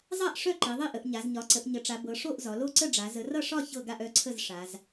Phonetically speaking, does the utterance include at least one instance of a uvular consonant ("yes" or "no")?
no